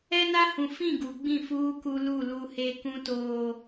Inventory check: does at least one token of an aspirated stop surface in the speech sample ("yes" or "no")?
no